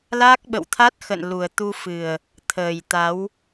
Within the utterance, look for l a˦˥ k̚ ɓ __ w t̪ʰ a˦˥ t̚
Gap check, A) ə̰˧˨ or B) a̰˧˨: A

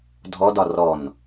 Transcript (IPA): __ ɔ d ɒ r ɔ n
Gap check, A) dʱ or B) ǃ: A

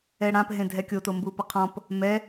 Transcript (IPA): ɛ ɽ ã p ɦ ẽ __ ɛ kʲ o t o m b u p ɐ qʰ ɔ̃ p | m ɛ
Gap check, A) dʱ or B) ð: A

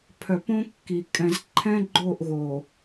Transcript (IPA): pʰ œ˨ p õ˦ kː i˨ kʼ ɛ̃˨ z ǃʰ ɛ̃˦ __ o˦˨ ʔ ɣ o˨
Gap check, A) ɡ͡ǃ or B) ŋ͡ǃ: A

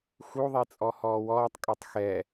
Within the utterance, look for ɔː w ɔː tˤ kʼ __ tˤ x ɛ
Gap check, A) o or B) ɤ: B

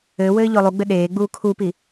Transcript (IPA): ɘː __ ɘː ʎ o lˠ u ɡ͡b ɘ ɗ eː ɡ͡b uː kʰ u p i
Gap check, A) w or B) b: A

